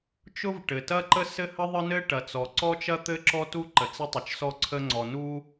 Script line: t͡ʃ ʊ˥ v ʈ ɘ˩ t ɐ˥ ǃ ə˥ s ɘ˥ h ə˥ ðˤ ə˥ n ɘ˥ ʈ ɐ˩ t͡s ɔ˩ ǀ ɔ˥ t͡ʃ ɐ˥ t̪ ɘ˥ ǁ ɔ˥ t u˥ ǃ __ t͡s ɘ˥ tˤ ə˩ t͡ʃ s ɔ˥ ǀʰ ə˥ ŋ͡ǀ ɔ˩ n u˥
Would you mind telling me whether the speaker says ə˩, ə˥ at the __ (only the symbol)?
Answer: ə˩